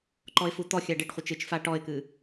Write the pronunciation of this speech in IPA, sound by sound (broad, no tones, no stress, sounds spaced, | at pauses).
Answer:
ǃ ɔ ɪ̯ f u t̪ ɔ xʲ a ɖ e ʈ χʷ e t͡ʃ ɨ t͡ʃ f a ʈ ɔ ɪ̯ k ɨ